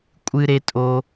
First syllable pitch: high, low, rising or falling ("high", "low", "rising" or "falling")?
high